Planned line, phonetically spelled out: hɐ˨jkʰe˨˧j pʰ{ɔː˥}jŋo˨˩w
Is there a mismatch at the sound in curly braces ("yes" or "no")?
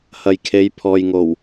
yes